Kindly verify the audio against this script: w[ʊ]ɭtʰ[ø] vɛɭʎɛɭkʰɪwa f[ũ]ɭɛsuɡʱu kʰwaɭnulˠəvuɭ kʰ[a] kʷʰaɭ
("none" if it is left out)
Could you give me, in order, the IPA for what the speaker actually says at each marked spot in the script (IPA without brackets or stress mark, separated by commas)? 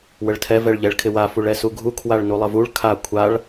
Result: ə, ɛ, u, a